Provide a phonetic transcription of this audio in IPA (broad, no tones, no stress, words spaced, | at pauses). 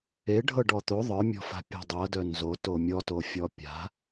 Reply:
eɖʱɤ ɖɔt̪o ðˤə˞mʲɔ̤fa̤ pʲe̤dˤɤdœ nzoto mʲɔtofʲɔ pʲa̤